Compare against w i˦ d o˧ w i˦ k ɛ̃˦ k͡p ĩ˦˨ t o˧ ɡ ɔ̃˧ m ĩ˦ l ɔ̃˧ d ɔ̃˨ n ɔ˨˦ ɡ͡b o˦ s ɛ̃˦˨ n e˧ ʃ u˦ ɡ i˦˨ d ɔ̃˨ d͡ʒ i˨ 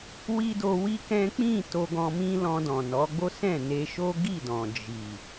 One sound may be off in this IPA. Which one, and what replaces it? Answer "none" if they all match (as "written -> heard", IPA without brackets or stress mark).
u˦ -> o˦